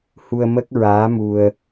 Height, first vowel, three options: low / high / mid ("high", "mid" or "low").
high